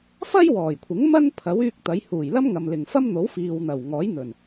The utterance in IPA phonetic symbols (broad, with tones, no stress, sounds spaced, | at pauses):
f ɐ˥ j w ɔː˨˩ j kʷʰ ɪ˨˥ ŋ m ɐ˥ n pʰ ɐ˨˥ w yː˧ k̚ t̪ ɐ˨˧ j h uː˨˩ j l ɐ˥ m ŋ ɐ˨ m l ɪ˨˩ ŋ f ɐ˥ m n̪ o˨˥ w f iː˨ w n̪ ɐ˨˩ w ŋ ɔː˨˥ j n̪ ɵ˨˩ n